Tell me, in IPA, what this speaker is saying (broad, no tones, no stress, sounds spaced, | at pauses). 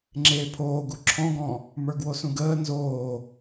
ŋ͡ǁ eː pʰ oː ɡ u ǁʰ ɔ̃ ɡ ɔ̃ | m ə˞ ɡ w o s ũ ɡ əː n z oː